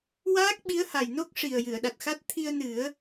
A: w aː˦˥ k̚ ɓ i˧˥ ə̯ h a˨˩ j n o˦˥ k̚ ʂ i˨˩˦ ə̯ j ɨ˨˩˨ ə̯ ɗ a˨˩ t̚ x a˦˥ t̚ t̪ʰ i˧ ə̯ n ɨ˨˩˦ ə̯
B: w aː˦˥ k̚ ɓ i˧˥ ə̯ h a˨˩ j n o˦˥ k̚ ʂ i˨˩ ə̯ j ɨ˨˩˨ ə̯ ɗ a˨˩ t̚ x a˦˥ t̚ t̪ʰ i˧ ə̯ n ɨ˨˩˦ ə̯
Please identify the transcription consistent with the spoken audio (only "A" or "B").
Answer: B